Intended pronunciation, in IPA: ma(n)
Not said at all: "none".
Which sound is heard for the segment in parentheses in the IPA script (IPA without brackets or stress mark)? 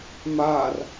r